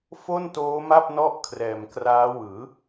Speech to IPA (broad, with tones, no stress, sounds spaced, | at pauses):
f o˥˩ n t oː˦˥ m a˥˩ p̚ n ɔ˥˩ ʔ kʰ r ɛː˨˩ m k r aː˦˥ w ɯː˩˦